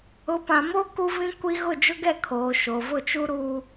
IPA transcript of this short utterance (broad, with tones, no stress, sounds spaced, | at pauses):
ʊ˨˦ p ã˨ m o˦ k u˦ v ĩ˦ kʷ i˦ ɣ ʊ˦˨ d͡ʒ ʊ˦ ɡ ɛ˦˨ kʰ oː˨ ʃ o˨ v ʊ˦˨ t͡ʃ u˦ ɾ u˦